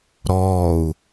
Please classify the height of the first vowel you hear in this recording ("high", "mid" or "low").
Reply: mid